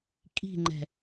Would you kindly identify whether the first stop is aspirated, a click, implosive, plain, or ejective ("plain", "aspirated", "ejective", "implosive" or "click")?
ejective